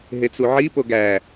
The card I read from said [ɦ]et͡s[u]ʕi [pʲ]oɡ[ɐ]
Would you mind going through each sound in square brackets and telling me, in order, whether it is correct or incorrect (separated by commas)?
correct, correct, incorrect, incorrect